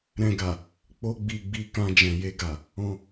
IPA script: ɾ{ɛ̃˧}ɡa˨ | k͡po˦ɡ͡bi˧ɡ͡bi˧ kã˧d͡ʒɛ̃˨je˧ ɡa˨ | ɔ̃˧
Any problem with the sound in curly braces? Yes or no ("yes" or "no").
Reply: no